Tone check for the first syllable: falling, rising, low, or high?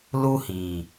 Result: high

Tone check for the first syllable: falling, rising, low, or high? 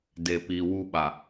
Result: low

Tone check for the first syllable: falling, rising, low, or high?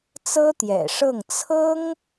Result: high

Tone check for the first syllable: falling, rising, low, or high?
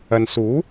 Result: low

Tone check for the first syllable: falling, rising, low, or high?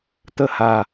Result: falling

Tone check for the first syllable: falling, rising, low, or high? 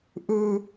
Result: high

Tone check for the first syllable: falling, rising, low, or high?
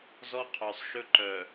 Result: high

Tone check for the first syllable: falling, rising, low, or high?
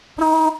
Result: high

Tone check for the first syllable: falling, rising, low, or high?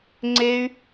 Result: high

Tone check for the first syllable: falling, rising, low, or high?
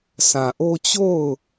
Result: low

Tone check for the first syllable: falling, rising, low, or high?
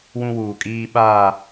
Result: high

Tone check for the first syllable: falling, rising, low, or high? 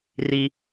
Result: low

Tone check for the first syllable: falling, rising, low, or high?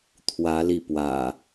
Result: rising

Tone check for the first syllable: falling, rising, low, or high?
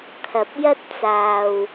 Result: low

